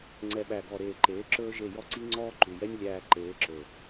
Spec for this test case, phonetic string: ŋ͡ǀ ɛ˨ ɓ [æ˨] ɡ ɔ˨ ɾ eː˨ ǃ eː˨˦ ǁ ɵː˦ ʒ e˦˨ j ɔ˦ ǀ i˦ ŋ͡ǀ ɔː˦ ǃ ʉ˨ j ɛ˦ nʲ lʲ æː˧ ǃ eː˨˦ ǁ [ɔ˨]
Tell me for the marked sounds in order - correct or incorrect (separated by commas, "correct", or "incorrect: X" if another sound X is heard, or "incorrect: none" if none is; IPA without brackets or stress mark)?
correct, incorrect: ɵ˨